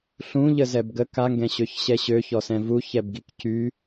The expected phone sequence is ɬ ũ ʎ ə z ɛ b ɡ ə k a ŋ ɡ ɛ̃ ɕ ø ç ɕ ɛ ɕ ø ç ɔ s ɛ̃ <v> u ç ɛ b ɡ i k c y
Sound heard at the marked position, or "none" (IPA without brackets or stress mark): v